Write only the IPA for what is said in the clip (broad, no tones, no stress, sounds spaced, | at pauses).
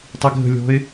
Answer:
tˤ i ɡʱ ə̤ lʲ ɔ̤ ɪ̯